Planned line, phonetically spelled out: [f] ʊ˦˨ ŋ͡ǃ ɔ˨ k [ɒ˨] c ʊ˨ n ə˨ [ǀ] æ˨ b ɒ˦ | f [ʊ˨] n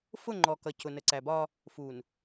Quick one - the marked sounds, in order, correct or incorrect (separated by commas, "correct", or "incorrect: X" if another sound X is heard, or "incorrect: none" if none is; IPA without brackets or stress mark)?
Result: correct, incorrect: ʌ˨, correct, incorrect: u˨